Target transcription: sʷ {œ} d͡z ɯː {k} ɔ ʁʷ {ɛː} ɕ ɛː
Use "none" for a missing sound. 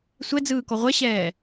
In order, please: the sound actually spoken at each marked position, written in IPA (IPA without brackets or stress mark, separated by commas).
ɛ, k, ɛ